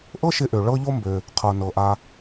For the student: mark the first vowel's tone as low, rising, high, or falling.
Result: high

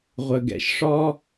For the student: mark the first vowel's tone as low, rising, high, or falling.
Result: low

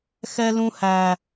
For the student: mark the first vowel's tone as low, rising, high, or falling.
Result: high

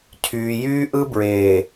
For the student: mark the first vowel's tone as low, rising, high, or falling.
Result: low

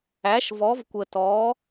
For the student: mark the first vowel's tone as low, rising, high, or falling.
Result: rising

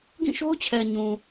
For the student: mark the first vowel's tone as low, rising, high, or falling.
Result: falling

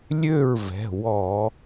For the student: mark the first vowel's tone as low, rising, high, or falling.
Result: falling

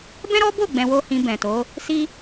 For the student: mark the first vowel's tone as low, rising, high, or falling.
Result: high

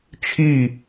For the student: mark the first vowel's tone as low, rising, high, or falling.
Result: falling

